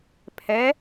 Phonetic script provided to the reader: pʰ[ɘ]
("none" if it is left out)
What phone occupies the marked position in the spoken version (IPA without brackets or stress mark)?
ɛ